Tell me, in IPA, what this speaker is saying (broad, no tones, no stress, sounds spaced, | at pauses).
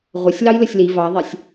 ʁʷ ə sʲ l ɑ j l ə sʲ l i v ɑ ðˤ ɛ sʲ